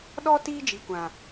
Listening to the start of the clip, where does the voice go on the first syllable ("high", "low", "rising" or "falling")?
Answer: high